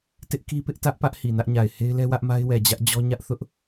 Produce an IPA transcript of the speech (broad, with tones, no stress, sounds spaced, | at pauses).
t ɪ˦ ʔ k i˦ p ɪ˦ ʔ t ä˦ ʔ p ä˦ ʔ h i˨ n ä˦ ʔ ɲ a˨ ɪ̯ h e˦ ɪ̯ l ɛ˦ w ä˦ ʔ m a˦ ɪ̯ w ɛ˨ d͡ʑ ä˦ ʔ d͡ʑ ɔ˦ ɲ ä˦ ʔ θ ʊ˦ ʔ